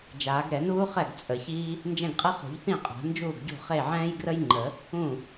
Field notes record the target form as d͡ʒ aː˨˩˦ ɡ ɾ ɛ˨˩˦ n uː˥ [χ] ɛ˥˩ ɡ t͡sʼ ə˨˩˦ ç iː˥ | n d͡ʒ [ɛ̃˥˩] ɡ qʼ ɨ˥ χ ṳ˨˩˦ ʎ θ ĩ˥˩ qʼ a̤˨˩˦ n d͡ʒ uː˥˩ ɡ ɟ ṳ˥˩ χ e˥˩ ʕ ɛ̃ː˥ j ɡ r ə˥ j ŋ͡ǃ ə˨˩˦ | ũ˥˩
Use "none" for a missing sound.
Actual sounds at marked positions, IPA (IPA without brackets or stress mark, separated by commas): χ, ɛ̃˥˩